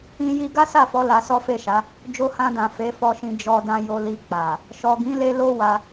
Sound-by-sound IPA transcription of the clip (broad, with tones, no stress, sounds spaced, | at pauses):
ĩ˦ j i˦ ɡ a˦ s a˦˨ f ɔ˨˦ l a˧ s ɔ˦ f e˦˨ ʃ a˨˦ | d͡ʒ o˧ h ã˧ d ã˨ f e˨˦ f ɔ˧ ʃ ĩ˧ d͡ʒ ɔ˧ d ã˧ j o˧ l i˧ k͡p a˨ | ʃ ɔ˨ ɡ ĩ˨˦ l e˧ l o˦ w a˧